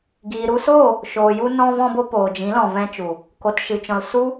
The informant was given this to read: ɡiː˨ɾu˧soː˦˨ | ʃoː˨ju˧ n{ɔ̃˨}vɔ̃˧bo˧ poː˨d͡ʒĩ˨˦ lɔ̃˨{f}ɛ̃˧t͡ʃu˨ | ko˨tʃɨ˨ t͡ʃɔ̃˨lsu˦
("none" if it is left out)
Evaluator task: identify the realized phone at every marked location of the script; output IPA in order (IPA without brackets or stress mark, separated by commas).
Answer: ɔ̃˧, v